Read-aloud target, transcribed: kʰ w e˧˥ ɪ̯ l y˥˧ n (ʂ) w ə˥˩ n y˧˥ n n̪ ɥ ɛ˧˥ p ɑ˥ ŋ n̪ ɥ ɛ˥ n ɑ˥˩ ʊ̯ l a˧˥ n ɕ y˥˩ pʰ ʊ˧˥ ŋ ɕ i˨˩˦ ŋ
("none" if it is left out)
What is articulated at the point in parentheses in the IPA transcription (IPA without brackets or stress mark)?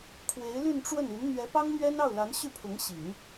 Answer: ʈ͡ʂ